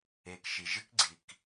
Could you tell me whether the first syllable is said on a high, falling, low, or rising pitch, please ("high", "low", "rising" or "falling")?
low